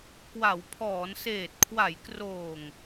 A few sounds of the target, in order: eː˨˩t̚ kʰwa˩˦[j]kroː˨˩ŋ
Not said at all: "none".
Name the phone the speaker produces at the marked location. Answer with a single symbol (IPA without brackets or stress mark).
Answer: j